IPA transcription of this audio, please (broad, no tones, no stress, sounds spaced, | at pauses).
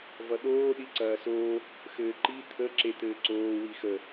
v ʌ ɗ oː ɗ i ǀ ɐː s oː | x ɘː ǃ i t̪ʰ ə ǁ e t̪ ɘː ǀ oː w i x ə